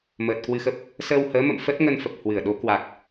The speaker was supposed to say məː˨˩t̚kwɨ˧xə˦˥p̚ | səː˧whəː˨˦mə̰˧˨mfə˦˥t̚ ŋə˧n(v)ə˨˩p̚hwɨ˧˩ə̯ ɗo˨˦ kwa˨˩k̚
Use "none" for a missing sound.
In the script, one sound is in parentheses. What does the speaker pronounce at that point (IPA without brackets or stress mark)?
f